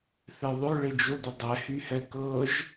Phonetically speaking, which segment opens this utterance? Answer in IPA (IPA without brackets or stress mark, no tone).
θ